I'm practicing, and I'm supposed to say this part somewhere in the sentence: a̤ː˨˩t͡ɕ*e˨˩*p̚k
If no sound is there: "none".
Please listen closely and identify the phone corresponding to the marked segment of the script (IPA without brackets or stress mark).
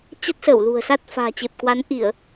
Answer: e˨˩